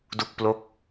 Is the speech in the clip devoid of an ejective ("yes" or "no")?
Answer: yes